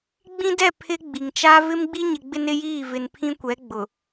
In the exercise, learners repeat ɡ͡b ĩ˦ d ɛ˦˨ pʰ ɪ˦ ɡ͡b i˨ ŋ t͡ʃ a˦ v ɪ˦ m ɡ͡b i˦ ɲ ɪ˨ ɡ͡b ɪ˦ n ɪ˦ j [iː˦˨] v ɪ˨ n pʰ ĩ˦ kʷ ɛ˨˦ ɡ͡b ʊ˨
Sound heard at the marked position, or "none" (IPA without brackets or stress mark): iː˦˨